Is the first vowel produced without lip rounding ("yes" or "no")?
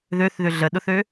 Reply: no